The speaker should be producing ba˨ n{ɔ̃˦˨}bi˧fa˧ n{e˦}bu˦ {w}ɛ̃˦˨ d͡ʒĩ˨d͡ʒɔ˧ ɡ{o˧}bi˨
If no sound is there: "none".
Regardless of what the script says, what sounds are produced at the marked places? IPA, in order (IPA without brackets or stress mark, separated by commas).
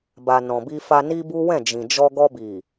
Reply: ɔ̃˨, i˦, w, ɔ˧